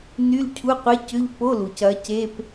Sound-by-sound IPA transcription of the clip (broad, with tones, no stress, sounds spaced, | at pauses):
n y˧˥˧ l cʰ u˧˥˧ qʷ ɪ˧˥˧ c ʏ˧˥˧ ʎ p o˧˥˧ l u˩ c ɐ˨˦ c e˧˥˧ p